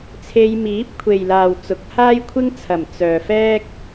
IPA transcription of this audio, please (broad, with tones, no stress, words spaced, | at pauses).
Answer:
t͡sʰe˧jmiː˨˥p̚kʷʰe˨jlaː˨w t͡sʊ˨k̚haː˥jkʷʰɪ˥ŋt͡sʰɐ˨˩m t͡sœː˨fɛː˥k̚